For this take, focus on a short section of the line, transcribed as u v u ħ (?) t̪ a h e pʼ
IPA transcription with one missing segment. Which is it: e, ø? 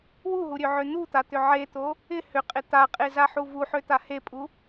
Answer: ø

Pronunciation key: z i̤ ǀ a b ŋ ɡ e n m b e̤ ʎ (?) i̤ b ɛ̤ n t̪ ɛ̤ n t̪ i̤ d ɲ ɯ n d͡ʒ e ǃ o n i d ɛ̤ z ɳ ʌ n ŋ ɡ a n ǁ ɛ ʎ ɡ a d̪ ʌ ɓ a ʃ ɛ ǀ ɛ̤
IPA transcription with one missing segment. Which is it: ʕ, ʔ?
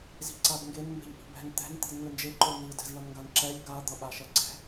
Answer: ʔ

